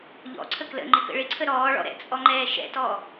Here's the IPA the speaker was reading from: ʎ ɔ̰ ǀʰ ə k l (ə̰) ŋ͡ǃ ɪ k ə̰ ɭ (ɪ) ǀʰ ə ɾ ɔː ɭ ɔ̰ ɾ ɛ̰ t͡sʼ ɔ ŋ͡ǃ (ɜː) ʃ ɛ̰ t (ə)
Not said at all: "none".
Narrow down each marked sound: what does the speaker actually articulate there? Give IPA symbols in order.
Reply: ə̰, ɪ, ɛː, ɔ

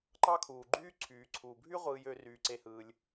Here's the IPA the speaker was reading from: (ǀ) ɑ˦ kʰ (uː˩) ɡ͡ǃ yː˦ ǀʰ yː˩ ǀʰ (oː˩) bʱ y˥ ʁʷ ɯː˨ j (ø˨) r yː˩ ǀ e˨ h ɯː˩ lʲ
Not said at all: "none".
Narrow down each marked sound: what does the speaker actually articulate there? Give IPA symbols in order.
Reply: ǃ, uː˩, uː˩, ø˨

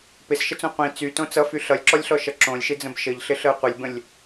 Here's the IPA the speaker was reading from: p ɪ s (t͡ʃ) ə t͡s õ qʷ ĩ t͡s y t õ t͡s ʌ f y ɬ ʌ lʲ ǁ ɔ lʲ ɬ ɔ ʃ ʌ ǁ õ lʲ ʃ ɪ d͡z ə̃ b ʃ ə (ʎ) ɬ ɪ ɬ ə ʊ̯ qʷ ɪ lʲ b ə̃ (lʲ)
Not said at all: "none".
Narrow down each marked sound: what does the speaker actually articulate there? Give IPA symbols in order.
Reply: ʃ, ʎ, lʲ

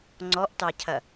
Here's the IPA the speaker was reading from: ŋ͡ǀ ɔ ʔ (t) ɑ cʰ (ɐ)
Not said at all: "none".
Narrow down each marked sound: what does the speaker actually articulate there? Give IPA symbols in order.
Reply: t, ɐ

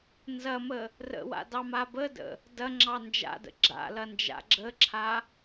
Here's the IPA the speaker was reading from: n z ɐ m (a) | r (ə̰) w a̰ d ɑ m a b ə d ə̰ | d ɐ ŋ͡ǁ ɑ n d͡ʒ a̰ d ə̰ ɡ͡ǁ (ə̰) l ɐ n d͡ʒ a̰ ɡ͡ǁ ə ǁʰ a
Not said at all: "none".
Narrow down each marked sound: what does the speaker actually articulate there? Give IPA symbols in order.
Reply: ə, ə̰, a̰

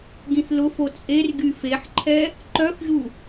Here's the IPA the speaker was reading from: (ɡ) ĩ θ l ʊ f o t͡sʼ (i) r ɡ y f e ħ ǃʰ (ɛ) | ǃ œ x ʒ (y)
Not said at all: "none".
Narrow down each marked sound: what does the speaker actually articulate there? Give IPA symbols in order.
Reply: ɡ, e, ɛ, u

